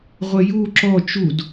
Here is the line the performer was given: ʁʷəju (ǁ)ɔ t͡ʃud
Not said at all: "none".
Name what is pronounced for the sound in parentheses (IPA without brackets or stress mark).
ǁ